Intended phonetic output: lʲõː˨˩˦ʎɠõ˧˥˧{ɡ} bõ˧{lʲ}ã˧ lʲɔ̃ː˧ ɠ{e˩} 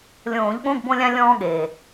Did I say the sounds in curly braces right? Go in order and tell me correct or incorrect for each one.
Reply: correct, correct, incorrect

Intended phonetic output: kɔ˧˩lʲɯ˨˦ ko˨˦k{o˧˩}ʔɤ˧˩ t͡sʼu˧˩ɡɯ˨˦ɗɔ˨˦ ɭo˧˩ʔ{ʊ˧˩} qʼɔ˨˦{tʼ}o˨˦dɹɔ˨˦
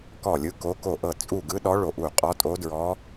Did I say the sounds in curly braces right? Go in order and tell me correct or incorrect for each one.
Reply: correct, incorrect, correct

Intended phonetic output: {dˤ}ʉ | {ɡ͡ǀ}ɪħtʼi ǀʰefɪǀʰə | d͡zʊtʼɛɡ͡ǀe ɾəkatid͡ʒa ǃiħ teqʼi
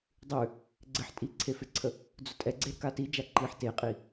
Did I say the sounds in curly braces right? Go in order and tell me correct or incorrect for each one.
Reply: correct, correct

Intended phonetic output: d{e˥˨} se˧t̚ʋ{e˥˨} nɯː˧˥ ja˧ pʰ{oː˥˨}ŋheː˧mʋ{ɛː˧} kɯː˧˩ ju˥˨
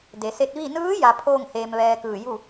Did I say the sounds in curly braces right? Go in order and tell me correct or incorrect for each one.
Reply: incorrect, incorrect, correct, correct

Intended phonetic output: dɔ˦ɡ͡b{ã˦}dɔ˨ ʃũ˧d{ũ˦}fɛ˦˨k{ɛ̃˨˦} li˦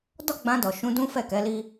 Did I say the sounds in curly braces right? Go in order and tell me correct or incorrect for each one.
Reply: incorrect, correct, incorrect

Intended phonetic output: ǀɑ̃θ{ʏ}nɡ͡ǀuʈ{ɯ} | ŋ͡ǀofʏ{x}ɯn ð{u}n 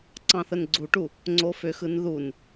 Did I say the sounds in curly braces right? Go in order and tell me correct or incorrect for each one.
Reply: incorrect, incorrect, correct, correct

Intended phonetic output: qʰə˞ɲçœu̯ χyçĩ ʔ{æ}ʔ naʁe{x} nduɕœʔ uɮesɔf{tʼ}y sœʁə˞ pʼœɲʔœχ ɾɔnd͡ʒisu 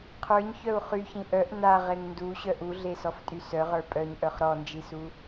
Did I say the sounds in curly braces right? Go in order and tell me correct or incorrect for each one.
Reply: incorrect, incorrect, correct

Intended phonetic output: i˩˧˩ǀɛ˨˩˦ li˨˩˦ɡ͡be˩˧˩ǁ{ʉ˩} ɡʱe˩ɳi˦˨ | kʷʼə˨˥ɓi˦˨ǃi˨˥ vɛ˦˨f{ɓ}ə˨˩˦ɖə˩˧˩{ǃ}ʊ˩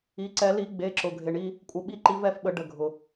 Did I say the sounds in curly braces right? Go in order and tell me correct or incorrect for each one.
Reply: incorrect, correct, incorrect

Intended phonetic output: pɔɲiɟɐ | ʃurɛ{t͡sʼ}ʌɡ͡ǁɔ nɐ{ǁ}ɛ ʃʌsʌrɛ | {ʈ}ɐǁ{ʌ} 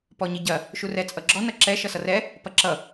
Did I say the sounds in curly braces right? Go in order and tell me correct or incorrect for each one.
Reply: correct, correct, incorrect, correct

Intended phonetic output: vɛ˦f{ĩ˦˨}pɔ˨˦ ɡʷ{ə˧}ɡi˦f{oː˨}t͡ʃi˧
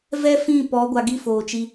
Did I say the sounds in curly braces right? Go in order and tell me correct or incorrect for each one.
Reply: correct, incorrect, correct

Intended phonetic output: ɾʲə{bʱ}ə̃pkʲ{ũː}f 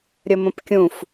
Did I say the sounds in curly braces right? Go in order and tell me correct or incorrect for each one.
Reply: incorrect, incorrect

